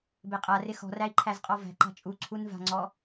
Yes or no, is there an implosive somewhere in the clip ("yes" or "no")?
no